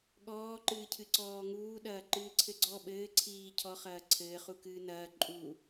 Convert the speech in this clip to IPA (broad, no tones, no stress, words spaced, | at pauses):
ɠɔː ǃɨːcʰɨǀɔːŋuː ɗɐːǃɨːǀʰɘɡ͡ǀɔ ɓɘː ǀʰiː cʰɔ χɐːǀʰɘː χukɨːnɐː ǃʼu